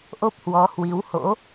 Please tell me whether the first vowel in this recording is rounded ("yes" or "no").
yes